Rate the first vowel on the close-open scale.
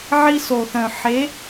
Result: close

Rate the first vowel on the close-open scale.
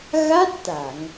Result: open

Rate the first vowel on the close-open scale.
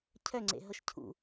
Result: mid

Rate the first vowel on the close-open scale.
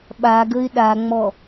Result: open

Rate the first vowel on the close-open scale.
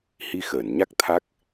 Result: close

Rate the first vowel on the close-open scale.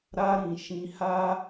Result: open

